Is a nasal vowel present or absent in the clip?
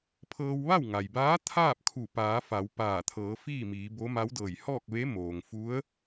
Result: absent